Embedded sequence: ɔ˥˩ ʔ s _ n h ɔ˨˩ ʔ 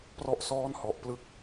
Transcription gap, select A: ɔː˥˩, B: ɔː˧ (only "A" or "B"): A